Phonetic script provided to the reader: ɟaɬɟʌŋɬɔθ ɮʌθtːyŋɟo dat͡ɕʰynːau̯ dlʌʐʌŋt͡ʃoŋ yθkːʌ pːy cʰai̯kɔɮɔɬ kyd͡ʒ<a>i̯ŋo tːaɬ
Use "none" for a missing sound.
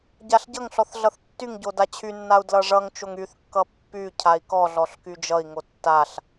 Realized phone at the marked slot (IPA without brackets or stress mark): ʌ